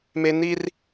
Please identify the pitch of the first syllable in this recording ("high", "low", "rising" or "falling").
high